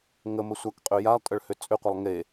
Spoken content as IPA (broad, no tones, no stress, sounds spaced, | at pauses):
ŋ ə m ə sʷ a k qʼ ø j a lˠ tʼ ə ɭ h ʏ t͡sʼ ʏ qʷ ɐ lˠ ŋ e